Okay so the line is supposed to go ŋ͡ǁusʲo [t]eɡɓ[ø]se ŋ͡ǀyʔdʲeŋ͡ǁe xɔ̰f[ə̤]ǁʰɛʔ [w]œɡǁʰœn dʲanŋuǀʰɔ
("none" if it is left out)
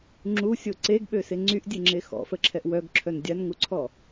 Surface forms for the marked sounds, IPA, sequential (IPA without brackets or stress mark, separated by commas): ǀ, ø, ə, w